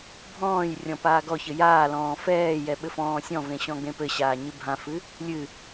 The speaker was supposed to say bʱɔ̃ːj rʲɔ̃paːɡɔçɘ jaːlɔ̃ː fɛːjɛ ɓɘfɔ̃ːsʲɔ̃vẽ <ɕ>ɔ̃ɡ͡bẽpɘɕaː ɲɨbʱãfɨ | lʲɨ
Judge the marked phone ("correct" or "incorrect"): correct